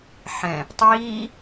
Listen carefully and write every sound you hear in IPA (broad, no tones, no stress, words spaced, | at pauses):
ħɛ̃ | tˤiː